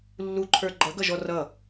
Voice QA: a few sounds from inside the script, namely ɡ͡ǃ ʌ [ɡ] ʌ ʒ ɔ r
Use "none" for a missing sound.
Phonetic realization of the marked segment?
ɡ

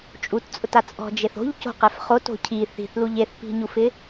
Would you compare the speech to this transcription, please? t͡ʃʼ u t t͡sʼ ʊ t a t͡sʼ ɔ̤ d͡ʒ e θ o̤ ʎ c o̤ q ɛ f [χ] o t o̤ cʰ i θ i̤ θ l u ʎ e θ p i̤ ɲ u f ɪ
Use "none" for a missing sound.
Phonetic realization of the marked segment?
χ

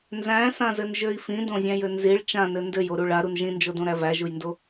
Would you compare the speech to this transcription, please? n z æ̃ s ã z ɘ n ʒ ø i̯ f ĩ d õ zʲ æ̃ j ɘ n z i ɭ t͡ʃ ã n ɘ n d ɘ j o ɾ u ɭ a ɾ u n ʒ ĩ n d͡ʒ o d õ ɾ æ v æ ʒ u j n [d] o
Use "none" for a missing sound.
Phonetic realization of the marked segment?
d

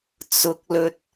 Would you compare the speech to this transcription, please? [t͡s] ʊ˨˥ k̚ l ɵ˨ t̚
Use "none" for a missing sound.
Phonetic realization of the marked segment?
t͡s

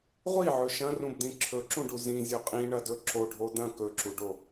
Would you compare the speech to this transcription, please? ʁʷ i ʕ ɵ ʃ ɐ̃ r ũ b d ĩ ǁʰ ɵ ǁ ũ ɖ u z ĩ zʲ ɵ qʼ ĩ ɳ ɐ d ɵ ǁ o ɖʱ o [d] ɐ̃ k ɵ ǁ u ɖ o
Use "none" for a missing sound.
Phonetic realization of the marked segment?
d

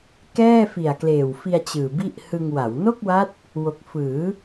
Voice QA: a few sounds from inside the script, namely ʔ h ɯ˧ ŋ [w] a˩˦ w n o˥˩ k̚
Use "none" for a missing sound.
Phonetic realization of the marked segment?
w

